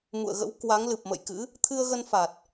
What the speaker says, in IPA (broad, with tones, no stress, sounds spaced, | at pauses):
m ṵ˧˨ ə̯ ɣ ə̰˧˥ w k w a˨˦ ŋ l ɨ˨˩ p̚ m ə̰˧˨ j k ɨ̰˧˥ | t̪ʰ ɨ˧ ə̯ ɣ ə˧ n f a˨˩ t̚